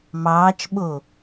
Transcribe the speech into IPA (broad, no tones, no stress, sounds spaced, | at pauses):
m ɑː t͡ʃ ɓ o